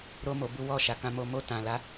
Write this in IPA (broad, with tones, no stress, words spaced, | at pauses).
ɾo˧mo˨ bu˧wɔ˧ʃa˨ kã˧mo˧ mo˧tã˨la˨˦